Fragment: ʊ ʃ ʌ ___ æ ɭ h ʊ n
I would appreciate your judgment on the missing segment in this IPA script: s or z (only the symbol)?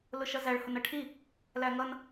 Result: z